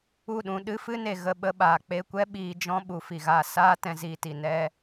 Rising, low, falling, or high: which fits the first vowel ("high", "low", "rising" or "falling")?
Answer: falling